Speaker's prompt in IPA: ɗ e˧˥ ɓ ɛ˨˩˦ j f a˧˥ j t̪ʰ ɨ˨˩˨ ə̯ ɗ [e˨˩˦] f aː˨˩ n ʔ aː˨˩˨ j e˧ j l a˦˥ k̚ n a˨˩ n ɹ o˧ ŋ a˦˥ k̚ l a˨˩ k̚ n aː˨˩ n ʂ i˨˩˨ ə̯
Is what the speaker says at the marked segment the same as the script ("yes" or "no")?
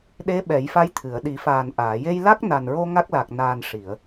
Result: no